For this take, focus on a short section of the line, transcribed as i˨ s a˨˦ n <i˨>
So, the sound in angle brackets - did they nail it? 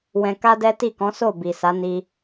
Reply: no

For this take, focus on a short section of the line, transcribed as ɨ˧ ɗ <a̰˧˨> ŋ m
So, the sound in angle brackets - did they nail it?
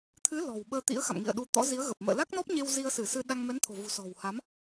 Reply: no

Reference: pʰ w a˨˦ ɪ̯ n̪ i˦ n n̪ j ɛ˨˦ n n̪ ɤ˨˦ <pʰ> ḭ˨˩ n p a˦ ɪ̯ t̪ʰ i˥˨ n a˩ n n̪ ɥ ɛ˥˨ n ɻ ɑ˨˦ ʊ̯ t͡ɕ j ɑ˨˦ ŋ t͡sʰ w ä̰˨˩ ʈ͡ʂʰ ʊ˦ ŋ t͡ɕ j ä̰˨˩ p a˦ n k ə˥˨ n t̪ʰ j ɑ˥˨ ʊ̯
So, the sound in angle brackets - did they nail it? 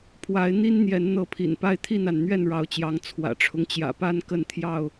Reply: yes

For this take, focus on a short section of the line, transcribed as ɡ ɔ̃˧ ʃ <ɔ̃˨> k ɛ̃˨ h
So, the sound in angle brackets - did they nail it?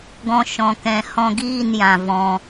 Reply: yes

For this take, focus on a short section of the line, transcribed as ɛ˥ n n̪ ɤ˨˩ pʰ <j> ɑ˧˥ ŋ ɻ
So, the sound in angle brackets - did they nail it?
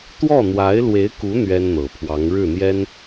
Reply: no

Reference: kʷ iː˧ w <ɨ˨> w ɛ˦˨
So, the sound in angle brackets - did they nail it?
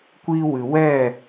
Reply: yes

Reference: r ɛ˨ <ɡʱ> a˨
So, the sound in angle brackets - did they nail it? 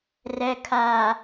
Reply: no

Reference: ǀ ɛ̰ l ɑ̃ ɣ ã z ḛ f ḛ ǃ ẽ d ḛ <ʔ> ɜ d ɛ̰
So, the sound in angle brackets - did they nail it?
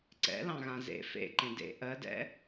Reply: yes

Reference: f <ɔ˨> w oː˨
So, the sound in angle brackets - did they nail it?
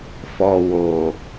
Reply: yes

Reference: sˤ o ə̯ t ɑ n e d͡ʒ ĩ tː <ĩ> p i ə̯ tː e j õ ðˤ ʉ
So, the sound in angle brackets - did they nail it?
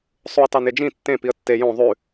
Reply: no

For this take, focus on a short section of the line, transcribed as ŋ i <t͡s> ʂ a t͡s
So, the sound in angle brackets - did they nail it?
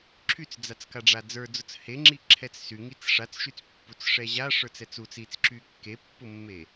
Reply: yes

